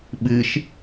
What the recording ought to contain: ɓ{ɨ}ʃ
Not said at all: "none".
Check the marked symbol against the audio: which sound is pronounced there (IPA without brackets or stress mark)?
ɨ